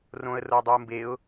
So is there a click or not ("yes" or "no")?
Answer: no